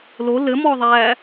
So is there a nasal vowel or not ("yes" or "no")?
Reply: no